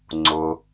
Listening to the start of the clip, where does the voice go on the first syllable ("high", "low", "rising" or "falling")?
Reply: low